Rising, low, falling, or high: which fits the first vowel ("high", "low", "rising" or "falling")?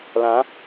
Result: rising